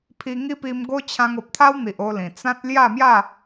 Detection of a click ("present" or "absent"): absent